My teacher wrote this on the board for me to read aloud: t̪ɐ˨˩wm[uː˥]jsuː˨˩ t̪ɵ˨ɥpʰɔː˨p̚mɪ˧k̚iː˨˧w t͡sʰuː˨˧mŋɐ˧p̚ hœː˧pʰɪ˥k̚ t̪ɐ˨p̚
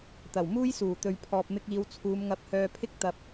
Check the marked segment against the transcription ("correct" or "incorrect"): correct